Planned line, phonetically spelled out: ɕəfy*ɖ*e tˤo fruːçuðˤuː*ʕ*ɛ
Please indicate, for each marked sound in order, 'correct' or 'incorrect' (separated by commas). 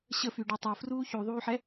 correct, incorrect